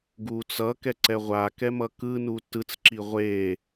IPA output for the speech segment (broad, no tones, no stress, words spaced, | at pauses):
ɡut͡sʌ kɛǀɛʁʷakɛ mʌkɯnu tɯt͡sǁi ʁʷe